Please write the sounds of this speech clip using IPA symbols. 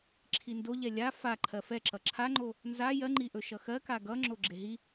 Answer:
ǁʰindo ʎɛlʲa fa ǃʰɜfɛǁʌ ǁʰaŋ͡ǃo | nza jɜŋ͡ǃiʔɵ ʃʌxɜka ɡʌ ŋ͡ǁoɡ͡ǁeɦi

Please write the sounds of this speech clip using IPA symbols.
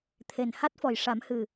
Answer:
t̪ʰe˨˩n ha˦˥t̚fɔ˨˩j ʂa˨˩˦mhɨ˨˩

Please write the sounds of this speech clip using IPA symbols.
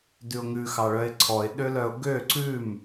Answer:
dʉʊ̯ŋʉ xɑɭœɪ̯ǀʰɔɪ̯ ɗølœʊ̯ɡø ǀʉm

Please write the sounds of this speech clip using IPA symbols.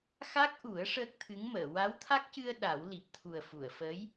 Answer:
xa˦˥k̚ʔu˨˩˦ə̯ ʂəː˦˥k̚t̪ʰɨ˧˥ŋməː˨˩˨ wa˧˥wt̪ʰa˦˥k̚cɨ˧ə̯ ɗa˨˩˦w li˨˩p̚t̪ʰu˨˩ə̯ fu˨˩˨ə̯fəː˧˥j

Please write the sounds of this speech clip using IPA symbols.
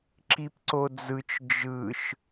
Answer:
ǁipǀod͡zɯt͡ʃ d͡ʒɯʃ

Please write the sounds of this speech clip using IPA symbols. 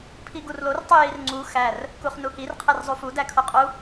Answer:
pʰiɡurlor tˤujirŋ͡ǀu xær | kuχnuhir qʰerzˤufu dækʰoqʼu

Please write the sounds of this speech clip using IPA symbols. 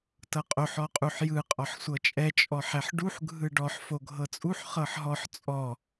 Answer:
tɤqʼoħ ɔqʼuħjɯ qʼɔħsʷɤt͡ʃʼɛ t͡ʃʼɔħɛħɖuħ ɡʱɯɖɔħ foɡʱɤt͡sʼuħ χɤħɦɔħ t͡sʼɔ

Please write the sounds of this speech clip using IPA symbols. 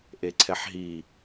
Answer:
ʔeǀʰɛħɦi

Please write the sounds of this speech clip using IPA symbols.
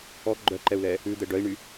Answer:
ɔ ɡ͡ǃœǃɛu̯lɛ | ʉd̪ɛ ɖœi̯ɳy

